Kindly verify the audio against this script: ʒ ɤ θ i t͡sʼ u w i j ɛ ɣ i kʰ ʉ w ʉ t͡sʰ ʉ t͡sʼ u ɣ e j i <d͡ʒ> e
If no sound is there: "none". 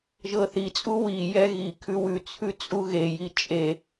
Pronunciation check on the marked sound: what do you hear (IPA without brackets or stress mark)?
t͡ʃʼ